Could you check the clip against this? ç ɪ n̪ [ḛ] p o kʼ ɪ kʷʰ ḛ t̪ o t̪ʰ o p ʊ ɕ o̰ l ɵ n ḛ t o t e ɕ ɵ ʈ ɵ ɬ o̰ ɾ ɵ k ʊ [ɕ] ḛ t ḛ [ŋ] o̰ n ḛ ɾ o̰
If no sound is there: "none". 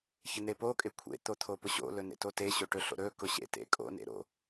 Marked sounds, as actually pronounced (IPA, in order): e, ɕ, kʼ

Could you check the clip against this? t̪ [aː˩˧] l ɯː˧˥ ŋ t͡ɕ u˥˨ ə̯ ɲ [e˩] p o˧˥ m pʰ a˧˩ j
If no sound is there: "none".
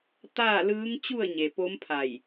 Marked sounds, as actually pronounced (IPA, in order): aː˥˨, e˩

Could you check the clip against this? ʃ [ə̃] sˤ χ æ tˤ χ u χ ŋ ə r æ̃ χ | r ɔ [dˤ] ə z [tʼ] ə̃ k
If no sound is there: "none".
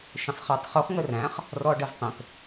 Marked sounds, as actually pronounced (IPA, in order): ə̃, ɖ, tˤ

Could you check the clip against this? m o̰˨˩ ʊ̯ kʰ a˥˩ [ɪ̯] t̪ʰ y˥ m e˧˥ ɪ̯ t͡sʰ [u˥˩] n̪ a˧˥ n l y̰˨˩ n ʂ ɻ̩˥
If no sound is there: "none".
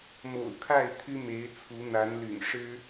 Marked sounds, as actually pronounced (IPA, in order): ɪ̯, u˧˥

